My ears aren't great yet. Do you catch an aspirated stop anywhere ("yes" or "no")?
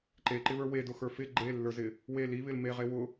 no